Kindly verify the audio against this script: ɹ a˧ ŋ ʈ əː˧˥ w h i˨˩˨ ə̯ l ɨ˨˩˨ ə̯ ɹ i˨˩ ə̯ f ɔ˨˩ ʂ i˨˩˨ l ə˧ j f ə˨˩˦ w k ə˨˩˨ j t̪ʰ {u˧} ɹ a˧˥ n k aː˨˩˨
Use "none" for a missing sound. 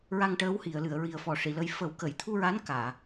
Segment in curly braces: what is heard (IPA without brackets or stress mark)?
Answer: u˧